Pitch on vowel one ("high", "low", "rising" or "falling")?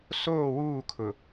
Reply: falling